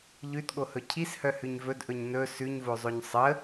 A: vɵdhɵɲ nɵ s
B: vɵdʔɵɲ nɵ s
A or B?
B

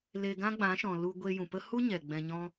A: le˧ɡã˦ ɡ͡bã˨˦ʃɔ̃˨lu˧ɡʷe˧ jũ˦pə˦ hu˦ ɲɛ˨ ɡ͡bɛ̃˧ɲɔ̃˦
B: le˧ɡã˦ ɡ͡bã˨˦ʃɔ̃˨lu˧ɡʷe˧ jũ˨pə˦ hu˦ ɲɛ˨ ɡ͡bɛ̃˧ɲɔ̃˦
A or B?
B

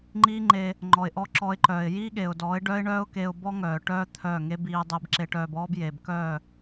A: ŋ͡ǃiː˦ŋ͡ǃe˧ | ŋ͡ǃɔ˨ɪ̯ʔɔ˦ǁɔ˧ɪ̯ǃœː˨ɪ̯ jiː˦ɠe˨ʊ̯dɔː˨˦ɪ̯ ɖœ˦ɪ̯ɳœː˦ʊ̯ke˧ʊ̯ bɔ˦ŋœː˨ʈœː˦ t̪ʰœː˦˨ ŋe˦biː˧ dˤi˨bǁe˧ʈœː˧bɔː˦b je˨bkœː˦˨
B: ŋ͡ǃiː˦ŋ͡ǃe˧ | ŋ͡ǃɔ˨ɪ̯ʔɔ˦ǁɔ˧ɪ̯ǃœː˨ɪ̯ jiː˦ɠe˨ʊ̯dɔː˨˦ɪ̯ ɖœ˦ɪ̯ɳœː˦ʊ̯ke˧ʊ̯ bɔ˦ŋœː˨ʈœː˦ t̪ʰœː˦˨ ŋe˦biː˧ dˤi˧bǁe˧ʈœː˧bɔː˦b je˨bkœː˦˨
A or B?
B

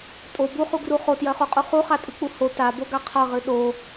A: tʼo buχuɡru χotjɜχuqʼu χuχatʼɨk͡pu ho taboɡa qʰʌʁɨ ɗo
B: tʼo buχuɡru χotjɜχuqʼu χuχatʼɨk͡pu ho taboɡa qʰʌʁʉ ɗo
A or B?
A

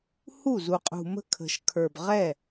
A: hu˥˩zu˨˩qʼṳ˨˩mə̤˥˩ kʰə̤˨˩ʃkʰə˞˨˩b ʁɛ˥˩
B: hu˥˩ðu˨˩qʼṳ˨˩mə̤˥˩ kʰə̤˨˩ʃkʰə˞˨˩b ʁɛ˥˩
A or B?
A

